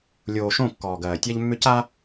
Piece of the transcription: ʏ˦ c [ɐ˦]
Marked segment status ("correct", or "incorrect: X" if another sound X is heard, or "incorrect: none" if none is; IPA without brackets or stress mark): incorrect: a˦